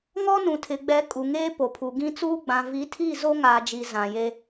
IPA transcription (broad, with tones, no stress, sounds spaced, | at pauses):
ŋ ɔ˦ n ũ˨ tʰ ɪ˨ ɡ͡b ɛ˨˦ kʼ u˨ ŋ eː˦ p o˨ pʰ u˨ ɡ ĩ˦ t͡s uː˦ ɡ͡b ã˨ v i˨˦ tʰ i˦˨ z o˦ ŋ aː˨ d͡ʒ i˨ z ã˨ j e˦